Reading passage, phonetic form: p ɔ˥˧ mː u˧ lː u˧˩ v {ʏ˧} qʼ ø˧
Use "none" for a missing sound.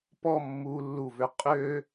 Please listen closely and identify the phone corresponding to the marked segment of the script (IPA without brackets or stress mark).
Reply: ʏ˧